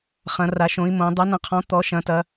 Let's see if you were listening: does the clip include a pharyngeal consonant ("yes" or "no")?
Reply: no